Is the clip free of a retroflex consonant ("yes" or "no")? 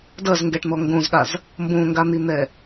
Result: no